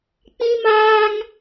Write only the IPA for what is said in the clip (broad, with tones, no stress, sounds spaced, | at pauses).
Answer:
k͡p ĩ˦ m aː˦ ŋ